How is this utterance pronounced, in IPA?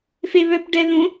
f e β œ p ɖ ɛ ð ũ

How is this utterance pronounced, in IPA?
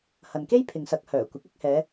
h ɐ˨ n k e˥ j pʰ ɪ˨ ŋ s ɐ˨˥ k̚ h œː˨˩ kʷ ɪ˨˥ k̚ ɪ˨˥ k̚ h ɛː˨˧

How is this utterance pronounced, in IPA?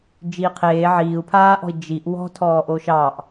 d͡ʒ iː qʰ eː ʕ iː u̯ pʰ aː ʔ ɔ̤ i̯ d͡ʒ i ʔ w ɔ̤ tʰ ɔː ʔ o ʃ ɑ ʔ

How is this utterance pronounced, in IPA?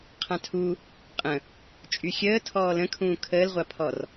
qʰ ã tʰ u | qʼ ə̃ | t͡ʃʼ y xʲ əː tʰ ɔː l ə̃ kʰ ũː kʰ əː l ʁʷ a pʰ ɔ r

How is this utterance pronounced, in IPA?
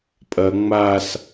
pʼ ɐ ŋ͡m a s

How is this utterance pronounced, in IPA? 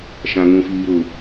ʃ ã˦ ŋ ũ˦ f iː˦ ɾ ʊ˦

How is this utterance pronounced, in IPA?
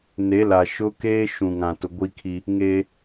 n e˨˦ l a˨ ʃ ʊ˦ k eː˦ ʃ ũ˨ ŋ ã˨ t ʊ˨ ɡʷ i˦ kʰ i˦ | ŋ eː˦

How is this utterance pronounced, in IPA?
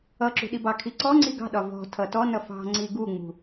ʌ ǁ ṳ ɗ i b ɑ kʰ i ǀ ɔ ŋ͡ǀ i ɡ ɑ̤ ɗ ɒ v ɔ̤ tʰ ʌ t ɔ n ʌ f ɑ̤ ŋ͡ǀ i ɡ u ŋ͡m ṳ

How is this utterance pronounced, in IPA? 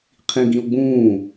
qʰ ĩ ɡ ĩ o̯ ɡ͡b ũː

